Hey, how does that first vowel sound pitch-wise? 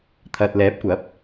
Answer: low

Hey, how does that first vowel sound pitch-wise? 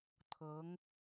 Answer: rising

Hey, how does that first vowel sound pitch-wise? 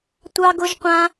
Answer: high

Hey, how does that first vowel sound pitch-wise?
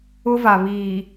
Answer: high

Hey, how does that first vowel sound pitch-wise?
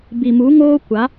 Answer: low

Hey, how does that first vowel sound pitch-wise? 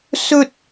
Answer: high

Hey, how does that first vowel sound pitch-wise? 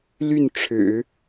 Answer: falling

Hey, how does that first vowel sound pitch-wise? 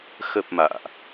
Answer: low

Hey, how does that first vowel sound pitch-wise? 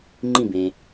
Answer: falling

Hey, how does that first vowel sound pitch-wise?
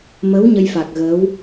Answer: rising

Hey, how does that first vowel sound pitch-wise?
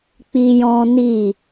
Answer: high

